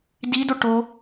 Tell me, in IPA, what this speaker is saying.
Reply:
d i d o ʈ o

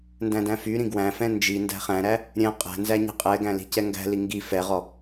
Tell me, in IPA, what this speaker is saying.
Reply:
n d æ̃ d æ̃ f y ɾ ĩ ɡ w æ̃ f ɛ̃ n d͡ʒ i n d æ̤ χ æ̃ ɾ æ | ɾʲ ɛ̃ qʼ æ̤ n z æ ɲ i̤ qʼ ɛ ɡ æ̃ l i̤ c ɛ ŋ ɡ æ̤ l i ŋ ɡ i f ɛ ʁ ɔ

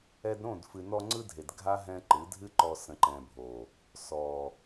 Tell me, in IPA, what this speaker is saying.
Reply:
ɛ˧ d ɾ õ˦˨ d f ɨ˨ n ɔ˧ ŋ͡ǀ ɯ˦ dʱ e˨ d ɡʱ a˦ ɦ ɛ̃˧ ǃ ɨ˨˦ dʱ ɨ˦ ǃ ɔ˧ s ə̃˨ ǃ ɛ̃˨ bʱ o˨ | s ɔ˨

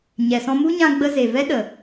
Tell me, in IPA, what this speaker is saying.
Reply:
ɲ ɛ˨ s ɔ̃˧ m u˦ ɲ ã˧ ɡ͡b ə˧ z e˨ v ɛ˦ ɗ ə˨

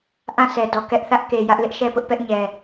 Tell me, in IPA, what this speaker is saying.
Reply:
ʔ ã˦˨ sʰ ɛ˨ d ɔ˨ k ɛ˦ ʔ θ ä˦ ʔ k e˨ j ä˦ ʔ l ɪ˦ ʔ ʃ ɛ˦˨ p ʊ˦ ʔ p ɛ˦ ʔ ɲ ɛ˨

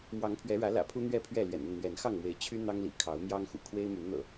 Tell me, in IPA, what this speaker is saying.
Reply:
m w ɑ˨˦ ŋ pʰ ɥ ɛ˨˦ ɻ ä˨˦ l ä̰˨˩ pʰ u˦ n̪ ɥ ɛ˥˨ pʰ ɥ ɛ˥˨ l ɥ ɛ̰˨˩ n ə˥˨ n n̪ ɥ ɛ˨˦ n x ɑ˥˨ ŋ m w e˨˦ ɪ̯ t͡ɕʰ y˦ n̪ ɑ˦ ŋ l ḭ˨˩ kʰ ɑ˨˦ ʊ̯ m j ɑ˦ ŋ x ṵ˨˩ kʰ w e˦ ɪ̯ m y˨˦ n n̪ ɤ̰˨˩

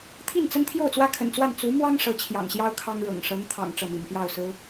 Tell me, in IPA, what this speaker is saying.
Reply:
t̪ʰ i˥˩ n t͡s ə˥ n t̪ʰ j o˥˩ ʊ̯ t͡s w ä˥ kʰ ə̰˨˩ n t͡s w a˥˩ n t͡s u˧˥ m w ɑ˥ ŋ ʂ ɤ˧˥ t͡ɕʰ j ɑ̰˨˩ ŋ ɕ j ɑ˥ ʊ̯ kʰ ɑ˥ ŋ ɻ ɤ̰˨˩ ŋ ʂ ɤ˧˥ ŋ t̪ʰ ɑ̰˨˩ ŋ ʈ͡ʂ ɤ˥˩ m ḭ˨˩ n p j ɑ˥˩ ʊ̯ s ɹ̩˥

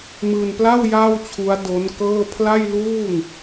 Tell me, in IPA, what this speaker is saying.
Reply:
m ɯː˧ n p l a˥˩ w j aː˥˩ w t͡ɕʰ u˦˥ a̯ d o˦˥ n k ɤː˥˩ pʰ l a˥˩ j l uː˥˩ ŋ

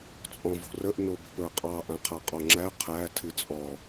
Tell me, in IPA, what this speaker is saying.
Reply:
t͡sʼ ɔ̃ v o̤ r ə ʔ n o b ə̤ p ə˞ qʼ ɑ ʔ ã qʰ a qʼ ɔ ŋ͡ǁ æ qʰ æ tʰ ɨ t͡sʼ ɔ

